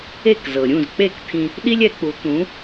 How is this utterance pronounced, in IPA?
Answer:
e˥˩ k z ɤ˩ ɾʲ ũ˥˩ z k͡p e˥˩ k t̪ʰ ĩ˧ | ɗ i˥ lʲ ɛ˩˥ k͡p u˩˥ t̪ ũ˩˥

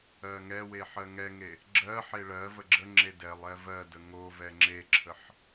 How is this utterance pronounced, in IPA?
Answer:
ɜ ŋ ɛ w e ħ ɜ ŋ ɛ ŋ e | ɡ͡ǁ ɜ ħ e ɭ ɜ v ə ɡ͡ǁ ə ŋ͡ǁ e d ɛ lˠ ɛ v ɜ d ə ŋ o v ɛ ŋ͡ǁ e ǁʰ ə ħ

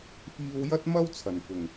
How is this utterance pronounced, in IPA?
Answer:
f iː˧ w j ɐ˥ t̚ m ɐ˥ w t͡sʰ ɐ˨˩ n f ʊ˨˩ ŋ

